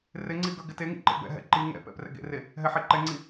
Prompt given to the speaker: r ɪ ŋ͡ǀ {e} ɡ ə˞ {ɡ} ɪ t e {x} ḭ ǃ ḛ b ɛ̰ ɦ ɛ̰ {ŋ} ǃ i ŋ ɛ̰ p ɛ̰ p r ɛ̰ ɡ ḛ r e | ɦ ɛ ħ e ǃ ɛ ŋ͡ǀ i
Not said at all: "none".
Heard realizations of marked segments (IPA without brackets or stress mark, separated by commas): i, ɡ, ŋ, none